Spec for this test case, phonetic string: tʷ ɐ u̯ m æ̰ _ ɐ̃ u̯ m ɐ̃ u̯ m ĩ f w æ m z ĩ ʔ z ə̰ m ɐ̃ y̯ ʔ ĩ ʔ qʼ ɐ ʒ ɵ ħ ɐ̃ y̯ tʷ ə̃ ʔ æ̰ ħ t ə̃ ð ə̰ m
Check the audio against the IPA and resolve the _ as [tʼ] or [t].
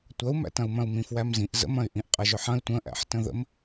t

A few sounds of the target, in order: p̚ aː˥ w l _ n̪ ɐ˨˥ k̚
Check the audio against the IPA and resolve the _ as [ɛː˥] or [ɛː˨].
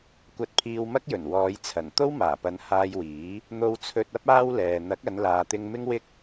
ɛː˨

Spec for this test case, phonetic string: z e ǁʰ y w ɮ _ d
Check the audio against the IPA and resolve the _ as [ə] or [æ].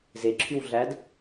æ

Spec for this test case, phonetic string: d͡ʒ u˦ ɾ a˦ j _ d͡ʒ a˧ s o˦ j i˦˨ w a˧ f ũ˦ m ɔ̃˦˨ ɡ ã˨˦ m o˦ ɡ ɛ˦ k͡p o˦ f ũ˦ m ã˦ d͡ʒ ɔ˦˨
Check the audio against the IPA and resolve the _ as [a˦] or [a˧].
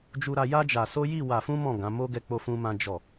a˦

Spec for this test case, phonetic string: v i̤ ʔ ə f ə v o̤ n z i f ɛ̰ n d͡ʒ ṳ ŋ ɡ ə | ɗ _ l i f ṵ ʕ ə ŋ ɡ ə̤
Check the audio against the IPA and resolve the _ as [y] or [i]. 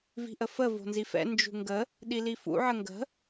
i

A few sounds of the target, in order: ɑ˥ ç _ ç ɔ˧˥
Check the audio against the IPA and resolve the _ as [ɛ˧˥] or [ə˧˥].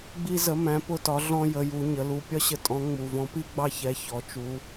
ɛ˧˥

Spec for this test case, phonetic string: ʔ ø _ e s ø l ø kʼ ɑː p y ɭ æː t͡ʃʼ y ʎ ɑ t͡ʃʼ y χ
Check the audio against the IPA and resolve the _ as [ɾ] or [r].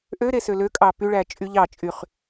ɾ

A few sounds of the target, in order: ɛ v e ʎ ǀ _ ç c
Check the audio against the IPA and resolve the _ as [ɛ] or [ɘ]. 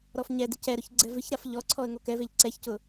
ɛ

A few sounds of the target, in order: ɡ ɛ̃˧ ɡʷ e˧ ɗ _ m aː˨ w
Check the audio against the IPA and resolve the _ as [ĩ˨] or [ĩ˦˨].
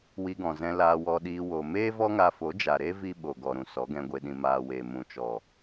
ĩ˨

